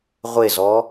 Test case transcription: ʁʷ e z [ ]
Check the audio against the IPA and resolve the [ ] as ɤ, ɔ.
ɔ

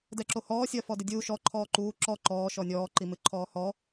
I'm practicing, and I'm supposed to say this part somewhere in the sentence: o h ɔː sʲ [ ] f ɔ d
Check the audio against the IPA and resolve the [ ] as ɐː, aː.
ɐː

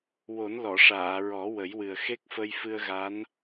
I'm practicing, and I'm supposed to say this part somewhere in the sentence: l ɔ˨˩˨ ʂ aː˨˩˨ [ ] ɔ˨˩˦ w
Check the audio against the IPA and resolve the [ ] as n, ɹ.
ɹ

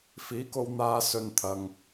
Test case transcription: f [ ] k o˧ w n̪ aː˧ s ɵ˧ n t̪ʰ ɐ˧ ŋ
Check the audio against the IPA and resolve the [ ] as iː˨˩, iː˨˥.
iː˨˥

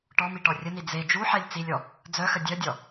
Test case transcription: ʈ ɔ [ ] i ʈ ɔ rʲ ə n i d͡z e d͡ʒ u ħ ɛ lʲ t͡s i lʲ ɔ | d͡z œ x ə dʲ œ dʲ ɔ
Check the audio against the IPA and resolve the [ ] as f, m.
m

